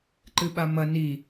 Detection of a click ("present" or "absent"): present